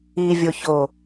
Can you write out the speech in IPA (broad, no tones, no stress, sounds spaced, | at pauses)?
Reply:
i vʲ o ç o